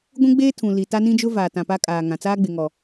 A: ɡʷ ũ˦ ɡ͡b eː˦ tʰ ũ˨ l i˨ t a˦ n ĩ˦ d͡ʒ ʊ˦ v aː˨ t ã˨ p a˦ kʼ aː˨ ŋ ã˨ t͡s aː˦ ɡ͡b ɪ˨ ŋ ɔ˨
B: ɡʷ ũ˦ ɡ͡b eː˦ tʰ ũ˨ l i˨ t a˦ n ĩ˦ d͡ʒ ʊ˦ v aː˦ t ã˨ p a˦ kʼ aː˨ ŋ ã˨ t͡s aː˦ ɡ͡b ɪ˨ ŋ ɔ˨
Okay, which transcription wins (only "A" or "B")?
A